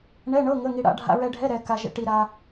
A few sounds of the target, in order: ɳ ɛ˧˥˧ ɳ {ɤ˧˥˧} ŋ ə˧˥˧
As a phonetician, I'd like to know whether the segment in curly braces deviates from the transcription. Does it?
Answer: no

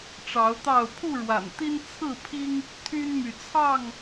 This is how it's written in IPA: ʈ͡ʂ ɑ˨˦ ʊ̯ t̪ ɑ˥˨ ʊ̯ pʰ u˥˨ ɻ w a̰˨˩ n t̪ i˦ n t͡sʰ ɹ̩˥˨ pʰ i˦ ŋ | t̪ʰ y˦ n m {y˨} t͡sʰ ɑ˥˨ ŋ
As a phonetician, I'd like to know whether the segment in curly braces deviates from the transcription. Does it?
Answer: no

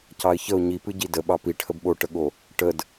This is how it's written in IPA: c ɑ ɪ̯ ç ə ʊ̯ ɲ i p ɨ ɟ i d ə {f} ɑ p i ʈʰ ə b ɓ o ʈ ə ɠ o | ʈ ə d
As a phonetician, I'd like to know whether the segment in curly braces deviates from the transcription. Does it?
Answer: yes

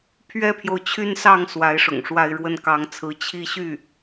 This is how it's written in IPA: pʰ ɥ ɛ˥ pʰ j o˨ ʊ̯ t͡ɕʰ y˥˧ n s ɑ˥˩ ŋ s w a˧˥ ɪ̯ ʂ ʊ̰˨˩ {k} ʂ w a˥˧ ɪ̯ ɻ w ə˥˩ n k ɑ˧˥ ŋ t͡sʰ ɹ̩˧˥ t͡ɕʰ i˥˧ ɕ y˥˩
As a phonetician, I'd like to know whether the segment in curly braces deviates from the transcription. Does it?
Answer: yes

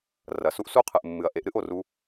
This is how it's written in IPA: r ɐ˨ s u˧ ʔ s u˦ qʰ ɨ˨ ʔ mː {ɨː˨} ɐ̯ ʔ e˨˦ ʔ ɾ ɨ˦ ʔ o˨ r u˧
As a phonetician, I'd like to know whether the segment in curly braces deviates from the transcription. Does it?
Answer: yes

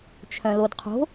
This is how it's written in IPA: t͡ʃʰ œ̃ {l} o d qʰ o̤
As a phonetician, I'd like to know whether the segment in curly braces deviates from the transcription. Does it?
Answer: no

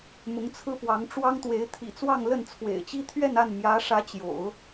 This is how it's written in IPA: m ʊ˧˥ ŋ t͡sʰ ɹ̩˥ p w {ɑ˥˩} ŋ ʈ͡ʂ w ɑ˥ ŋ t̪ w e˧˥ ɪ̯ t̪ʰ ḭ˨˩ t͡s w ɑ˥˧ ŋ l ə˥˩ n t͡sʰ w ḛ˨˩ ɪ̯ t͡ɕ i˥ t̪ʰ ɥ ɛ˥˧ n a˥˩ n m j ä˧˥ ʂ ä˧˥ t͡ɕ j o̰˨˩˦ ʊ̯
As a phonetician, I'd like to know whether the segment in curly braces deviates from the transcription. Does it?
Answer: yes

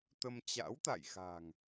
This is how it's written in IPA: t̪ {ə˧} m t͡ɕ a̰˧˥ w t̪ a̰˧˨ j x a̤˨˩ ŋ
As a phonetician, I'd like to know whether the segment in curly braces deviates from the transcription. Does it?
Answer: no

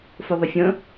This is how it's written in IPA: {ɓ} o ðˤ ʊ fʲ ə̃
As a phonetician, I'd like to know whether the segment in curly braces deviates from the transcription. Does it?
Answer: yes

